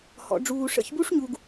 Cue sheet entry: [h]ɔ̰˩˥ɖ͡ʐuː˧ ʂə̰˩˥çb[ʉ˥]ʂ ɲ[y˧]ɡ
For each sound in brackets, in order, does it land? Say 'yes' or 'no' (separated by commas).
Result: yes, no, no